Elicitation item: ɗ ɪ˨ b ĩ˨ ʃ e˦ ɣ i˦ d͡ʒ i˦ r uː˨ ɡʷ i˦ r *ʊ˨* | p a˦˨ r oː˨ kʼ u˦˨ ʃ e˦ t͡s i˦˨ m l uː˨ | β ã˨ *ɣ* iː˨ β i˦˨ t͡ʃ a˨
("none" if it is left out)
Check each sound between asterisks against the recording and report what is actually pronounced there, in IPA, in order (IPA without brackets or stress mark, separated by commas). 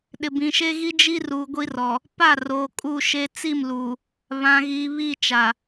ɔ˨, ɣ